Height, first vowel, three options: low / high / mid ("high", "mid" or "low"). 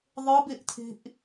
high